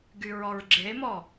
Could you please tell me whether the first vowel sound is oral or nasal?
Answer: oral